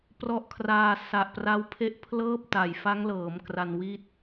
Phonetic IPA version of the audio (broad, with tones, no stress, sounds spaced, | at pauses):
p r ɔ˦˥ ʔ kʰ r aː˧ s a˨˩ ʔ p r a˦˥ w pʰ e˥˩ ʔ pʰ l ɤː˥˩ p̚ t a˨˩ j f a˦˥ ŋ l ɤː˩˦ m k r a˧ n w i˥˩ t̚